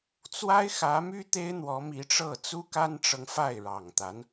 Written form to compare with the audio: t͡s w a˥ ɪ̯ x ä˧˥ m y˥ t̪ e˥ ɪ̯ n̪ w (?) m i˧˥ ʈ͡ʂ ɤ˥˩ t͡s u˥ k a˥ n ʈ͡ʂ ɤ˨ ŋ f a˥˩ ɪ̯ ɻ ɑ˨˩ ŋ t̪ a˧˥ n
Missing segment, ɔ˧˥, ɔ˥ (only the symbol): ɔ˧˥